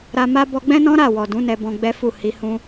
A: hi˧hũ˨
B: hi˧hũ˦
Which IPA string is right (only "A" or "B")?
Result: B